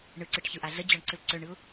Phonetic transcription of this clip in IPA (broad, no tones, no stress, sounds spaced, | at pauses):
ɳ ɯ ǀ ɯ ʈ ç ɯ ʔ a ɮ ə d͡ʑ ɔ ɳ ǀ ɯ l ǀ œ ɳ ɯ ʊ̯